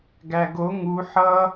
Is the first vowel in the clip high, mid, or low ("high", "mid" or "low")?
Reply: low